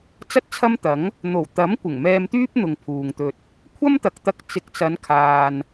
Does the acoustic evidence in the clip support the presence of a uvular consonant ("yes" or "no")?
no